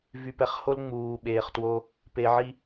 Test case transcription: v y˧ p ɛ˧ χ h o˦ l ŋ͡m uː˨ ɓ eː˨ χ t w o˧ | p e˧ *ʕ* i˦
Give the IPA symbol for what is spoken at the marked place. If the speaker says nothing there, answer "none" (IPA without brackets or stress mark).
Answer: ʕ